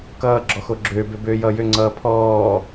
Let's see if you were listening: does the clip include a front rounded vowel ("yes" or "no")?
yes